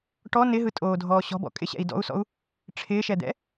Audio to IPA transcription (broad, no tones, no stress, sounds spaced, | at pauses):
ʈ ɔ n ɪ ɦ ɯ tʼ oː dʱ ɔː ɕ ɔ̤ b ɔ̰ kʼ ɪ ɕ ɛ̰ i̯ d ɔ̰ u̯ s ɔ̰ u̯ | ʈ͡ʂʰ ɪː ʃ ɛ d̪ ɛ̰